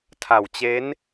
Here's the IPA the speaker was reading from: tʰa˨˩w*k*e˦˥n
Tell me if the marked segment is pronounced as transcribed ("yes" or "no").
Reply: no